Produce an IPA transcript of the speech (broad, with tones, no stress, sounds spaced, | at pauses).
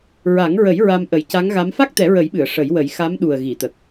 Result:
ɹ a˨˩˦ ŋ ɹ ə˨˩˦ j ɹ a˧ m ʔ ə˨˩˦ j c a˧˥ ŋ ɣ a˧˥ m f a˦˥ k̚ t̪ ɛ˨˩˦ ɹ ə˨˩˦ j ɓ ɨ˨˩˨ ə̯ ʂ ə˨˩˦ j w ə˨˩˦ j x a˧˥ m ɗ u˨˩ ə̯ ɣ i˨˩˨ t̪ ə˨˩ k̚